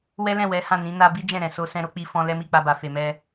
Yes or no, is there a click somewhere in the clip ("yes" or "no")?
no